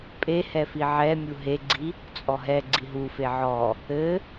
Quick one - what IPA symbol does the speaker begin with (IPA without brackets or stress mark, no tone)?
pʼ